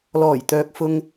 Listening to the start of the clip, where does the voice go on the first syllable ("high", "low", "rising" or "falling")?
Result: low